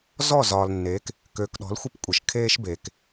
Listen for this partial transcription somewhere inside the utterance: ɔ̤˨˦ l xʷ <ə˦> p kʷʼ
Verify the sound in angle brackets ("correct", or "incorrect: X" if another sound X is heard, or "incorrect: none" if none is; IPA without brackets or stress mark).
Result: correct